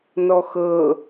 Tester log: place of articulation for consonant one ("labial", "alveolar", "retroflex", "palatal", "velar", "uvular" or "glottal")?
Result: alveolar